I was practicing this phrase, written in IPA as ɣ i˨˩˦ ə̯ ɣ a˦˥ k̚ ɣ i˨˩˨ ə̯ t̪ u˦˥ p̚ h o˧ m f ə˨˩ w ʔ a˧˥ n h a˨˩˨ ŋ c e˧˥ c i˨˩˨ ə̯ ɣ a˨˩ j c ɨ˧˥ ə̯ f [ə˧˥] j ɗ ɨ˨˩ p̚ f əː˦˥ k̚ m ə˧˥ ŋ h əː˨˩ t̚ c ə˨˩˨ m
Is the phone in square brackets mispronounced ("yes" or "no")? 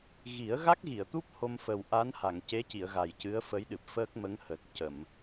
no